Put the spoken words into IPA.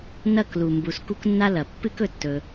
n ɐ˦˨ k l u˨ m b u˨ s k u˧ k nː a˧ l ɐ˨ pː ɨ˦ k ɵ˧ tː ɵ˧

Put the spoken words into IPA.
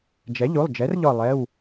d͡ʒ ɛ˩˥ ʎ u˩˧˩ lˠ d͡ʒ ɛ˩˥ r ʎ ɔ˧˩ lˠ ɛ˩˧˩ w

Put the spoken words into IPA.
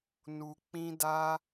n u˧ k͡p ĩ˦ d a˦

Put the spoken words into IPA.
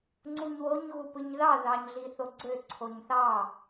ŋ͡ǀ u ɲ w o ɲ ɣ u p ɯ ɲ ð ɑ ð ɑ ɲ ɮ i θ o ɡ͡ǀ ø ǀʰ o ɲ θ ɑ

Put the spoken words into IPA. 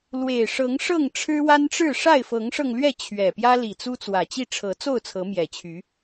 l w e˨˩ ɪ̯ ʂ ɤ˨˦ ŋ ʂ ɤ˥˨ ŋ ʈ͡ʂʰ ɻ̩˦ w a˦ n ʈ͡ʂ ɻ̩˥˨ ʂ a˥˨ ɪ̯ f ɤ˨˦ ŋ ʂ ɤ˧ ŋ l ɥ ɛ˥˨ t͡ɕʰ ɥ ɛ˨˩ p j ä˦ l i˨˩ t͡s u˦ t͡s w ä˨˩ t͡ɕ i˥˨ ʈ͡ʂʰ ɤ˨˦ t͡s o˥˨ ʊ̯ t͡sʰ ɤ˨˦ m j ɛ˨˩ t͡ɕʰ y˨˦

